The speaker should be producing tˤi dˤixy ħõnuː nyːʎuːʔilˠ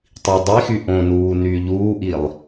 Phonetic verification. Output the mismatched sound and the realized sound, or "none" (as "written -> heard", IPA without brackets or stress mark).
ħ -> ʔ